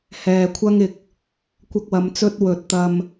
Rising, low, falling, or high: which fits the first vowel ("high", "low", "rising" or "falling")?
low